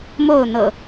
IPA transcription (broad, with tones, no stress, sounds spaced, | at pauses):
m o˥˨ ʊ̯ n̪ ɤ̰˨˩